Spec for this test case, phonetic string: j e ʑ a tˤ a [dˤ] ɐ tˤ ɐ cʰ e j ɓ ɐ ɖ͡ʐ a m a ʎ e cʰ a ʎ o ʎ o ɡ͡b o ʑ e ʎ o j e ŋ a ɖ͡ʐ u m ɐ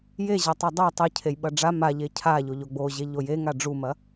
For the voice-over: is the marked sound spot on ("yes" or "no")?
yes